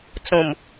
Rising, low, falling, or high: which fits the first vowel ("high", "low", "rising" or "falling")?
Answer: low